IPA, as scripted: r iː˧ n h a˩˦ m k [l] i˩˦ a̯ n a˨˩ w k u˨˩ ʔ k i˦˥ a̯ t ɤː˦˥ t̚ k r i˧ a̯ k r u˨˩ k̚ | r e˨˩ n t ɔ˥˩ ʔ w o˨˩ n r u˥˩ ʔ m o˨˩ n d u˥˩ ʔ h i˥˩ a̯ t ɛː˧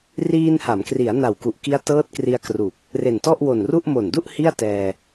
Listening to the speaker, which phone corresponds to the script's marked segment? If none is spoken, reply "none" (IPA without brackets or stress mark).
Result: r